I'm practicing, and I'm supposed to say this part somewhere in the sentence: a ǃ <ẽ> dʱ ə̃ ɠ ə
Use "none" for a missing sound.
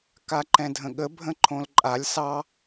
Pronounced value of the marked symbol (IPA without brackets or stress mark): ɛ̃